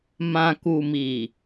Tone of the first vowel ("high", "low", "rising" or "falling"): low